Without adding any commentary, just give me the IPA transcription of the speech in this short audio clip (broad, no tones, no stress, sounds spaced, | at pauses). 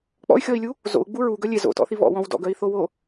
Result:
k͡p ɔ̰ y̯ xʲ ɔ i̯ lʲ u | z o̰ u̯ ɡ͡b u ɹ u ɡ œ lʲ e z o̰ t ɔ̰ θ i β ɔ̰ w ɔ̃ w d ɔ̰ ɡ œ i̯ θ o w o